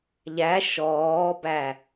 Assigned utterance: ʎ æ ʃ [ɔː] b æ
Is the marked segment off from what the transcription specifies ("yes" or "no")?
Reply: no